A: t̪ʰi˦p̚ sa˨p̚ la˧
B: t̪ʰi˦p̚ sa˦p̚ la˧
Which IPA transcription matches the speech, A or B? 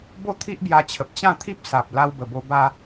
A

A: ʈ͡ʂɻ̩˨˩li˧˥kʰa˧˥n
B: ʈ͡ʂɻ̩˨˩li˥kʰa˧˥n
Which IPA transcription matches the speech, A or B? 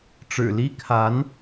B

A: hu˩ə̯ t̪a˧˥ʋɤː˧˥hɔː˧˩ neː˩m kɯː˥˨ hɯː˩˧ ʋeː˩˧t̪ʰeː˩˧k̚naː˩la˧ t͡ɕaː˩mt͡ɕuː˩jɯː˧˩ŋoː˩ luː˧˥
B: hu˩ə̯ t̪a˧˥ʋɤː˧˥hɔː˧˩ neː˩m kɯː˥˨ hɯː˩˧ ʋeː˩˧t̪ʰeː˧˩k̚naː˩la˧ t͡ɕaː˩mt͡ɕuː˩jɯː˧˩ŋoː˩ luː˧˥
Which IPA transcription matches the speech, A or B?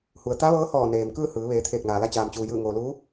B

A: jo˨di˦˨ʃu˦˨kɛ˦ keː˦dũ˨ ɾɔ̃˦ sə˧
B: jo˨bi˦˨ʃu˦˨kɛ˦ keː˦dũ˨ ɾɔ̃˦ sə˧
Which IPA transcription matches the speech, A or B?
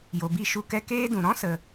B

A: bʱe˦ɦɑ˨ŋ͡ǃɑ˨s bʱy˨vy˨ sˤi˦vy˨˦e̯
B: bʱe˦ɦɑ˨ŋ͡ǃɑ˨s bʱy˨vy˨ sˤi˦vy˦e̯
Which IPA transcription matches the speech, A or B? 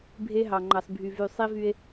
B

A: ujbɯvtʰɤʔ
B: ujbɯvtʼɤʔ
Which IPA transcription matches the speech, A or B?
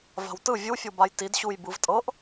B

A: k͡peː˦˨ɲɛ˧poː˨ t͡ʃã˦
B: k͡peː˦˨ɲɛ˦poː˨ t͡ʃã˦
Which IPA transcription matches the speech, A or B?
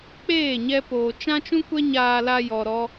A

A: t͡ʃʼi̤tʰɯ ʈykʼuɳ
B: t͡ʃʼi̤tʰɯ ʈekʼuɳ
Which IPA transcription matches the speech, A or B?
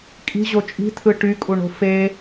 A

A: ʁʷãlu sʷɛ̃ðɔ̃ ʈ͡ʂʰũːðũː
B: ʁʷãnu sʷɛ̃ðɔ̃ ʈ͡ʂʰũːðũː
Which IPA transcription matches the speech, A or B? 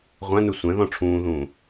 B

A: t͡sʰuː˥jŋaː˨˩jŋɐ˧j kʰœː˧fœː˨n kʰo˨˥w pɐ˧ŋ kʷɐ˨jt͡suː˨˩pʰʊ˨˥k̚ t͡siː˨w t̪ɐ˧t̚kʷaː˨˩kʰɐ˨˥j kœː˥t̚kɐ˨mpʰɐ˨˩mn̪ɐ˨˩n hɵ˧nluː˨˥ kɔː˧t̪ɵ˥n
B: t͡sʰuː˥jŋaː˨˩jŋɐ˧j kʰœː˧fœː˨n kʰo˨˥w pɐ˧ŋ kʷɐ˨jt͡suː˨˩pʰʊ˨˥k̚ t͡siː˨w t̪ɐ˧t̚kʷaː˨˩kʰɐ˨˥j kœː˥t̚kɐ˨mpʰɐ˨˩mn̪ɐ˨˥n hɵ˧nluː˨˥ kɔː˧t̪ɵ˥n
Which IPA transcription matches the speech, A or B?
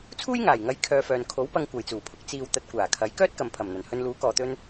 A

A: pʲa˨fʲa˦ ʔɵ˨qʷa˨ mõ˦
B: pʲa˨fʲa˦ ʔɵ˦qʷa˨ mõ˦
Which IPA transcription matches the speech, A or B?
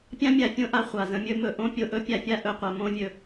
A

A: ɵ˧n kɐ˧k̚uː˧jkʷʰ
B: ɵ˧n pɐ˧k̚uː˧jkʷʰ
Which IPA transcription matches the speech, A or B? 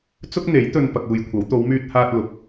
B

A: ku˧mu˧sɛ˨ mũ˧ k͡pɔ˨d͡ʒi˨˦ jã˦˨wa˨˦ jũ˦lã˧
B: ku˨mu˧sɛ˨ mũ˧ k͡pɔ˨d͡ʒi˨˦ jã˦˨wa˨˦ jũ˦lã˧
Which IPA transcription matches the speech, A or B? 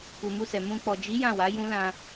B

